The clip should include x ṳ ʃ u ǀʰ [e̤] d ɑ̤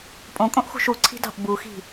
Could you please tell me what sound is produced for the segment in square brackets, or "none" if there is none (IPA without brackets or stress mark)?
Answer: i̤